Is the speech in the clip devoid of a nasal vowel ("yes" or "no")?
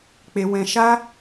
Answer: no